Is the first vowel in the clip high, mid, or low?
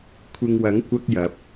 high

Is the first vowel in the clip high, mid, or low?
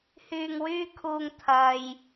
high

